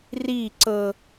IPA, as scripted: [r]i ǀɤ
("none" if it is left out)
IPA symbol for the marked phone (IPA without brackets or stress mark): r